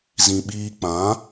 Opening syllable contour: low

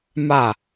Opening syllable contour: falling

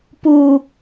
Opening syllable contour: low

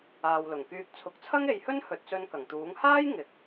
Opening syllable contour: low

